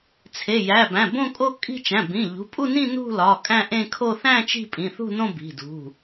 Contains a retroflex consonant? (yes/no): no